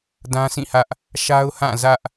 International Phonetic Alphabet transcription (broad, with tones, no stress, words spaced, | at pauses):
dã˦sĩ˦˨hä˦ʔ | ʃa˦ʊ̯hã˦˨ zä˦ʔ